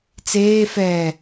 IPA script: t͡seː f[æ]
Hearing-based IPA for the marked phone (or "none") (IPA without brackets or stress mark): ɛ